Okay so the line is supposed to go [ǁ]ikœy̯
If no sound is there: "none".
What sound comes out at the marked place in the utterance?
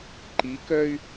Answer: ǃ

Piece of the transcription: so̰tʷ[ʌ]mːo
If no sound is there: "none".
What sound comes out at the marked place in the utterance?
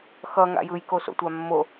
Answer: a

